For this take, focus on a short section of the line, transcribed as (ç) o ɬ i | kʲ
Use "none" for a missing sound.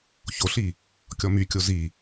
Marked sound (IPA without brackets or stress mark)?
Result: ç